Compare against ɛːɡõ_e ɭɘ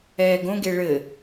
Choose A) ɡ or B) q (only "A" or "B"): A